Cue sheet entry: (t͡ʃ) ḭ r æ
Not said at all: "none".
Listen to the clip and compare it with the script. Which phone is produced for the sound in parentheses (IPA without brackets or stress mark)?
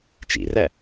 t͡ʃ